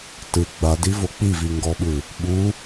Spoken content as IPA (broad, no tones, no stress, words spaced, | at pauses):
tɯ ɡ͡badivo k͡piviŋɡɔɓɯ | ɓu